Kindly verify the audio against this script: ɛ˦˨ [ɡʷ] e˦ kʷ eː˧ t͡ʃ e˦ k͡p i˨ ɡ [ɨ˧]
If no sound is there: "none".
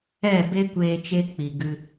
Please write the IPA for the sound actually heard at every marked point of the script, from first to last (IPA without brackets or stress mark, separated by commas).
b, ɨ˧